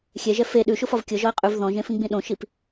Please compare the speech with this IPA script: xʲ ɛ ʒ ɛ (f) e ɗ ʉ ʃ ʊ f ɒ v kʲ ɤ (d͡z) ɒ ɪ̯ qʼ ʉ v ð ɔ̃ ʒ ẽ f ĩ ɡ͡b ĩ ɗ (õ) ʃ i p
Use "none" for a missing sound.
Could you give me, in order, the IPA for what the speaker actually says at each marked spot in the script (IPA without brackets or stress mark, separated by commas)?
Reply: f, ʒ, õ